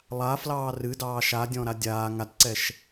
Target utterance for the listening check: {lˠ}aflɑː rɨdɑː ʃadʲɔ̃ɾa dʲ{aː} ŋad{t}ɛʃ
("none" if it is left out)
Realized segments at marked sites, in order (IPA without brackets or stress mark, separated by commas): lˠ, aː, ǀ